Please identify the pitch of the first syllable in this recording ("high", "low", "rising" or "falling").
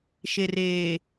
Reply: low